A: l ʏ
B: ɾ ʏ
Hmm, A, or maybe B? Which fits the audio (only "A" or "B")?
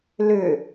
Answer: A